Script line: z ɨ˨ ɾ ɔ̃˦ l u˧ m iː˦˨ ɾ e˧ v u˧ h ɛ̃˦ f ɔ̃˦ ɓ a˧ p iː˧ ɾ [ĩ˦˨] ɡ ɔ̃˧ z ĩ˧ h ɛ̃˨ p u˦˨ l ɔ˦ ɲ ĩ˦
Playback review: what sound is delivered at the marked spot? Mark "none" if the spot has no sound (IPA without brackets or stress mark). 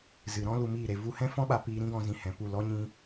ĩ˦